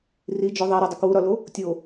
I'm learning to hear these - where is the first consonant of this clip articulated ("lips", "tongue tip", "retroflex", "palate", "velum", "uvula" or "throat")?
tongue tip